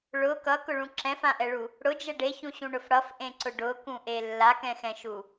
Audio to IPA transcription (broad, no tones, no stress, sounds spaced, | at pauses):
ɭ ʊ k ʌ k ʊ ɭ ũ ǁ ɛ̃ f ã ʔ ɛ ɭ u | ɽ ʊ d͡ʒ ɛ ɖ e ç ũ ɕ ũ ɳ ʊ f ɽ ʌ f ʔ ẽ ǀ ʊ ɖ ʊ k ũ ʔ e lː a k ɛ̃ x ɛ̃ ʃ u